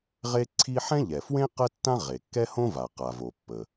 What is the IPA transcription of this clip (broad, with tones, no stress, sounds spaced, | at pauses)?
ʁ e˥ ǀʰ i˥ ħ ɛ̃˥ ʎ ɛ˩ f w ẽ˥ q ə˥ tː ã˥ ʁ e˩ kː ɛ˥ h õ˥ v a˩ q a˩ v o˩ pː ə˩